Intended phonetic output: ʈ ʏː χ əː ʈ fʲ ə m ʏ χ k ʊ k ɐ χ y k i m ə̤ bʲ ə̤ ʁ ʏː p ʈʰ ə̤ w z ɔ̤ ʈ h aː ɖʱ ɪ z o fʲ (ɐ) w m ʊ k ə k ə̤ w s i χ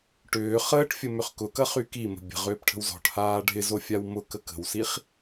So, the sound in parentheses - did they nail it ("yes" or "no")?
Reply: no